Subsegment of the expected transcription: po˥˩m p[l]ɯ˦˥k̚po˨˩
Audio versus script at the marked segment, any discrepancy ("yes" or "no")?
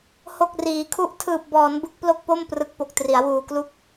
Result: yes